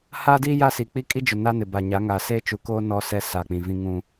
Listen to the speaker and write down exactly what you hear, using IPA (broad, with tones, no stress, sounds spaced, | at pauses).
h aː˦ d iː˦ j a˦ s i˨ k͡p i˦ kʼ i˦ d͡ʒ ʊ˨ n a˦ n ɪ˨ b a˨ ɲ a˨˦ ŋ a˨ s e˦ t͡ʃ u˨ k oː˦ n ɔ˦ s ɛ˦ s a˨ k͡p ĩ˨ v ĩ˦ ŋ ũ˦